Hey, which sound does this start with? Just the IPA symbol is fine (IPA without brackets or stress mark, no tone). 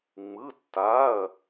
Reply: ŋ͡m